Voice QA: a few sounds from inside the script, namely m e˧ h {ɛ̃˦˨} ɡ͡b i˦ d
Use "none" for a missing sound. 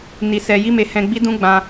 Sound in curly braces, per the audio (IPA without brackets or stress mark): ɛ̃˧